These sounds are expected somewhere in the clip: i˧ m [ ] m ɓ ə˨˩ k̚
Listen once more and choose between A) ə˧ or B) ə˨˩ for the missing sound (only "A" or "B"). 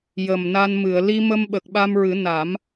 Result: A